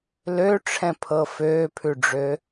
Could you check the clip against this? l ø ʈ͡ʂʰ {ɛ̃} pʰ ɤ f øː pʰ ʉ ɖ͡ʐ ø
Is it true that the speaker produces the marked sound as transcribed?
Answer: yes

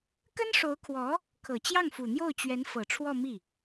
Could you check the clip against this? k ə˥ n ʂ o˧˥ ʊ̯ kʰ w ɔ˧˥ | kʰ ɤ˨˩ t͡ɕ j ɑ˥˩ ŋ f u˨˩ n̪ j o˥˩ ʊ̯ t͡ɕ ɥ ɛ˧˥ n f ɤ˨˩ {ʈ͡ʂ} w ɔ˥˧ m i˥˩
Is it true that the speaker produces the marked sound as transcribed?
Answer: no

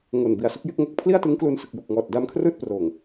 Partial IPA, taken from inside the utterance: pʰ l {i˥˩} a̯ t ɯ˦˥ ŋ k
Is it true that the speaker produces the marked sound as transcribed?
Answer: yes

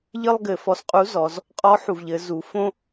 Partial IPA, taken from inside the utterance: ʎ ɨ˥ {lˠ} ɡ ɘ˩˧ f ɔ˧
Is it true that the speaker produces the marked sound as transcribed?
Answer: yes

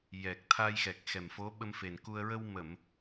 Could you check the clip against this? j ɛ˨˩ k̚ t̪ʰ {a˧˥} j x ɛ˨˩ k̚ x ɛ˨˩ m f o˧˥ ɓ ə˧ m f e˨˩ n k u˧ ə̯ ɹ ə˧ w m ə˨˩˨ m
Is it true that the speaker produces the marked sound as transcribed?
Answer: no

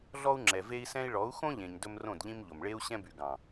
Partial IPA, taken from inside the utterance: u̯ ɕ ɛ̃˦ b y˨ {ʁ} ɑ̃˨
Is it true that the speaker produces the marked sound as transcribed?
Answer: no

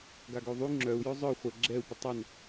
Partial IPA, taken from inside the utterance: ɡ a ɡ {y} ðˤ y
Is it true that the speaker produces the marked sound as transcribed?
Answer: no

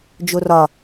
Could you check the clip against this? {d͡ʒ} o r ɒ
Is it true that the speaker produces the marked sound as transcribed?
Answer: yes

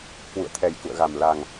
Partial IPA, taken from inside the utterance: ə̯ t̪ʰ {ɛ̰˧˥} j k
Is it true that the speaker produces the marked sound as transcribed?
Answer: no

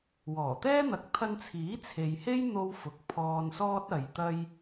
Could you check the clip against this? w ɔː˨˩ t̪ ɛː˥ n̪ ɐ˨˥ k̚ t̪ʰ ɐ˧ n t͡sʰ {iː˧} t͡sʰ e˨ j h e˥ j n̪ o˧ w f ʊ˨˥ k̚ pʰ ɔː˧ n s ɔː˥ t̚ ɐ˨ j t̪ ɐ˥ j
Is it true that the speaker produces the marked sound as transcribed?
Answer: no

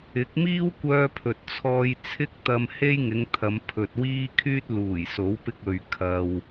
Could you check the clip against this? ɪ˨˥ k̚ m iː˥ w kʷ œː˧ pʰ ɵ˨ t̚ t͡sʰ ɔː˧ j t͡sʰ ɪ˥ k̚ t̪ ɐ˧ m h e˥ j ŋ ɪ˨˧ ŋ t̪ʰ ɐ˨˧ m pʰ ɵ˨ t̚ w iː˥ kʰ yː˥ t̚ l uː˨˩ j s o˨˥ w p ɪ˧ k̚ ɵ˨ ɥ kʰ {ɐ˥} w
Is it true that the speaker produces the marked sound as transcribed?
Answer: no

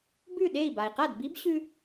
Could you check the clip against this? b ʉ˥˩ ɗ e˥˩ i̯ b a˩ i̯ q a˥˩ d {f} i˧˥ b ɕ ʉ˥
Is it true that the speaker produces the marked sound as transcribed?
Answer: no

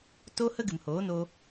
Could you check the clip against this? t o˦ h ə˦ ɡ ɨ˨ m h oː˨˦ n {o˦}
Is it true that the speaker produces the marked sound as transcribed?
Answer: no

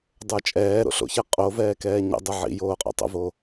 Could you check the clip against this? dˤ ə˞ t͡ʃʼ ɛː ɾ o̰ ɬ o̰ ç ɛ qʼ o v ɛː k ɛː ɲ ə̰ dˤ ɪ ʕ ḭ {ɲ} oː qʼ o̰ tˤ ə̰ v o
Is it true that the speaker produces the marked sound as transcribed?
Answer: no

